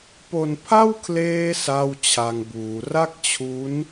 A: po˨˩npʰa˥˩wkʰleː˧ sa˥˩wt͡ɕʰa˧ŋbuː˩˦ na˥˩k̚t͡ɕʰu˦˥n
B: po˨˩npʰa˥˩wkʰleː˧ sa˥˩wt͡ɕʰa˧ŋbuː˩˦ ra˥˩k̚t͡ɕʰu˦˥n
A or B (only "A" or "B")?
B